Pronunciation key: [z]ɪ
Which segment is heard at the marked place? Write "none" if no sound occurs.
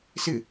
s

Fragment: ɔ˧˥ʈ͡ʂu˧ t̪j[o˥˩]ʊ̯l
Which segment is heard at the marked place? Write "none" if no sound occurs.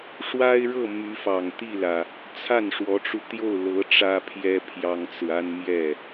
o˥˩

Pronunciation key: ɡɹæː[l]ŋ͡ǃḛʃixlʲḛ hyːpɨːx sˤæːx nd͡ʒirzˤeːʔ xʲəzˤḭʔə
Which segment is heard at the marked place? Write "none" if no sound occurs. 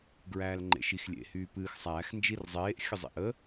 l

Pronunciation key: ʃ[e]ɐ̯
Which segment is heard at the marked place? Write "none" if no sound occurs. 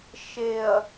e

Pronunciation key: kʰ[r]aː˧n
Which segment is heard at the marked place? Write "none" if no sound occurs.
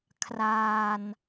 r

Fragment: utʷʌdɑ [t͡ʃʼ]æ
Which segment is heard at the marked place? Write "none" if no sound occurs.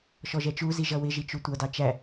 t͡ʃ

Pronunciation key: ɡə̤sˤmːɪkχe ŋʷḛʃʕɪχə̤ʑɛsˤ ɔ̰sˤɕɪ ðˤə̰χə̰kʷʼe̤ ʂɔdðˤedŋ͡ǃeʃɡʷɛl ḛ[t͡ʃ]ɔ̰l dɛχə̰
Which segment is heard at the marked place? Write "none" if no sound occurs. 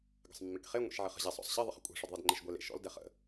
ʃ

